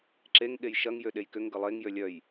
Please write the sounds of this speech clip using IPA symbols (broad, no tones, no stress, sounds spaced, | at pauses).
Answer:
ǁ e ŋ ɠ e j ʃ ɐ ŋ j ø ɗ e j k ʏ ŋ ɡ ə lˠ e ŋ j ø lʲ œ j